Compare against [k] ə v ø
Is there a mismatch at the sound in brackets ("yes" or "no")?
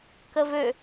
no